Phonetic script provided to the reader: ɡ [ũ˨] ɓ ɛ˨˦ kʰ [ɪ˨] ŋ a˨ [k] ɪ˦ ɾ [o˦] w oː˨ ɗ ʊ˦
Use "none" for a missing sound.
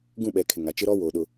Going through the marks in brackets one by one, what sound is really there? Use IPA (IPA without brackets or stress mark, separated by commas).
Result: ũ˦˨, ɪ˨, t͡ʃ, ɔ˦